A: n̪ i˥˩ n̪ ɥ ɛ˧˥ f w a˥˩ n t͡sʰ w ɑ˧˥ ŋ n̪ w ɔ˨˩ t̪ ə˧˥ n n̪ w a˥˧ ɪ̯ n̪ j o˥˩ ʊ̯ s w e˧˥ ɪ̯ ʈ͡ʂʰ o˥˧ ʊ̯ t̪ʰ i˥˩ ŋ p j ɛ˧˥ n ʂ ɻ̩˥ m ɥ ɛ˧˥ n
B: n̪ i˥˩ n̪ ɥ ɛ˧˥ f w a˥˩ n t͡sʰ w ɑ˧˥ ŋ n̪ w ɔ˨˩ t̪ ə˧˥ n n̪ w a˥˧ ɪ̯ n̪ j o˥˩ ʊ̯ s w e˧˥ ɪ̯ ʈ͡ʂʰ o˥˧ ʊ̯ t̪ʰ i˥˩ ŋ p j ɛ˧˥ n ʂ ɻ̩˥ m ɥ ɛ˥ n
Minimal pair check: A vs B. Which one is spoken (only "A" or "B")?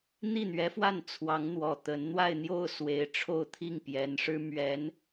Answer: A